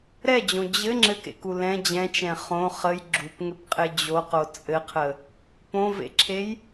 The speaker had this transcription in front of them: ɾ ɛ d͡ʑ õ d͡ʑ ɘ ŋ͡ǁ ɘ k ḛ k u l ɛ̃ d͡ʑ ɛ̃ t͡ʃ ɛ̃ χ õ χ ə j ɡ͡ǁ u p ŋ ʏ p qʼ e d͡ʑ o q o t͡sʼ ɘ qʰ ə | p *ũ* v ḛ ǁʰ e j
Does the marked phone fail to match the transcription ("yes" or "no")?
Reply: yes